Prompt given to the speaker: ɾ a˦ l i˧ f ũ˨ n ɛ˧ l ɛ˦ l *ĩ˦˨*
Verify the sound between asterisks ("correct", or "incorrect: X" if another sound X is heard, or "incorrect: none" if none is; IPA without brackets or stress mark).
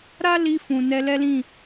correct